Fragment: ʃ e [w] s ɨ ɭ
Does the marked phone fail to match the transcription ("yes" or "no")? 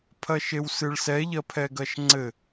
no